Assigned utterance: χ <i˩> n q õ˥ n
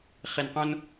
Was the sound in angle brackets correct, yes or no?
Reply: no